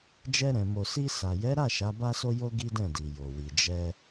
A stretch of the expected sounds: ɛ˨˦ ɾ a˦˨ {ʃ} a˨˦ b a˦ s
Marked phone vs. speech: correct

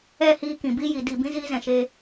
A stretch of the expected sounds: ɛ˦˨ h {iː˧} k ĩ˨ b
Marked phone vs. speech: correct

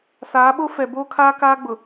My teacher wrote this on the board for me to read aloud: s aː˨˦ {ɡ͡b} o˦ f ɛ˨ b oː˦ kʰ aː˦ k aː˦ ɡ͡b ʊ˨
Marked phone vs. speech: incorrect: ɓ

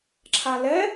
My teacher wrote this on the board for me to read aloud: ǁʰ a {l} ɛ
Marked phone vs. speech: correct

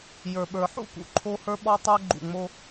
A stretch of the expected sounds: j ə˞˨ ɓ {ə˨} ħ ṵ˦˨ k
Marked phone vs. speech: incorrect: ə˞˨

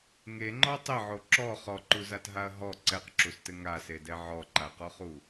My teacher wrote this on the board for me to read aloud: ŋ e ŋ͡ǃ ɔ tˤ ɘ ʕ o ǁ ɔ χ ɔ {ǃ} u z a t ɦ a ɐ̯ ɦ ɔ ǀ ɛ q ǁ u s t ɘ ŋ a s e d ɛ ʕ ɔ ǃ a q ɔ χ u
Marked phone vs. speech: correct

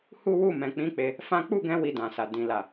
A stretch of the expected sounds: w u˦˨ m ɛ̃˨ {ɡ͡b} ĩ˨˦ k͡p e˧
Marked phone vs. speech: incorrect: k͡p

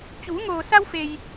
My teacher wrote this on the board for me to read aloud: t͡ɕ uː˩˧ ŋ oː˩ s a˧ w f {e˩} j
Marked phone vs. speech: correct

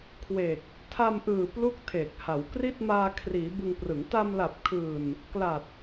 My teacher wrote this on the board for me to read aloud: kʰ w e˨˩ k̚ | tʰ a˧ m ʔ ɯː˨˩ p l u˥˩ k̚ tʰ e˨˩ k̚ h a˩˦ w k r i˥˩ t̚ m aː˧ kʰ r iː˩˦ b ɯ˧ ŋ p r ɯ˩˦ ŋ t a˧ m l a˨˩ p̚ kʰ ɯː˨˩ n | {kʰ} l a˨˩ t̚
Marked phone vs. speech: incorrect: k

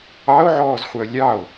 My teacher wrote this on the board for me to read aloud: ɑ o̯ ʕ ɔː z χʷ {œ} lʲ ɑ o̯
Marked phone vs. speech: correct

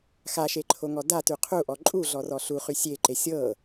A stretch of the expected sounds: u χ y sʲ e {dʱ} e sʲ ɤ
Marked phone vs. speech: incorrect: ǃ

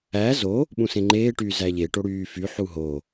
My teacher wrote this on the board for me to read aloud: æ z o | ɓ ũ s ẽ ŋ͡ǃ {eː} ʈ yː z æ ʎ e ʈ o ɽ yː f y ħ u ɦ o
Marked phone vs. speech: correct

